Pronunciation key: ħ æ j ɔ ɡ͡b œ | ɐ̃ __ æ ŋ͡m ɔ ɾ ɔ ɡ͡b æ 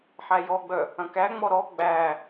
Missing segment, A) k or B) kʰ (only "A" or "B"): A